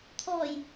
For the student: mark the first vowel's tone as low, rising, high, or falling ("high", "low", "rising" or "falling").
low